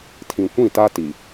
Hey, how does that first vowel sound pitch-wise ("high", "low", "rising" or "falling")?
low